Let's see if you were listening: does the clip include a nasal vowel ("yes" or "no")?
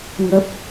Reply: no